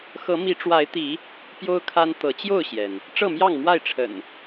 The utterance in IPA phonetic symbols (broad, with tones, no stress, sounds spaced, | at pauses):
x ɤ˨˦ m i˨˦ ʈ͡ʂ w a˨˦ ɪ̯ t̪ i˨˦ | p j o˦ ʊ̯ kʰ a˦ n t̪ ɤ˨˦ t͡ɕ j o˥˨ ʊ̯ ɕ j ɛ˩ n | ʈ͡ʂ ɤ˥˨ m j ɑ˥˨ ŋ m w a˥˨ ɪ̯ ʈ͡ʂʰ ə̰˨˩ n